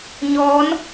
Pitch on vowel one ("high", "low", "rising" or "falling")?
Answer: rising